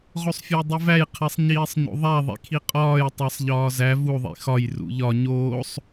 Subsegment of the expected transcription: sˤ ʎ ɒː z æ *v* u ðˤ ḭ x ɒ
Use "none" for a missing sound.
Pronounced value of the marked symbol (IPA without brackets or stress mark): v